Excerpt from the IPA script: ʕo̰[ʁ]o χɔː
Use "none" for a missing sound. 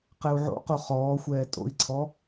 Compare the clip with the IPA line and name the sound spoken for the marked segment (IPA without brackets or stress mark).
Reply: q